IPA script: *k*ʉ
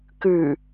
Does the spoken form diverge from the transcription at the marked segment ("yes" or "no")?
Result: no